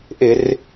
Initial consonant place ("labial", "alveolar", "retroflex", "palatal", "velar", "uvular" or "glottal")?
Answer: glottal